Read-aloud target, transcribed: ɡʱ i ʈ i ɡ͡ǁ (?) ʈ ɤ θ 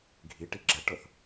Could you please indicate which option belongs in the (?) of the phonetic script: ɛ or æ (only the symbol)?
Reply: ɛ